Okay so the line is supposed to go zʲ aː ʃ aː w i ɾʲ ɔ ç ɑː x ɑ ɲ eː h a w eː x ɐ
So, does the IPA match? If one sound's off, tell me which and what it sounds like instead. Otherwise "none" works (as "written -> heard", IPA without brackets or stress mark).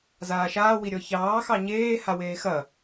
zʲ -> z